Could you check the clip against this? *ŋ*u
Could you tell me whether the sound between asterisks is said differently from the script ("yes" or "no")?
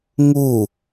no